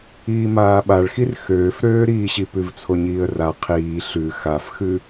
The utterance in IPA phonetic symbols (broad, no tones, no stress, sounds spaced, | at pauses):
iː m aː ɓ a ɭ x i r x øː f ɾ øː ɾ iː ɕ i p ʉ v t͡sʰ o ɲ iː ə̯ r a qʰ iː ɬ ʉ x a f x ʉ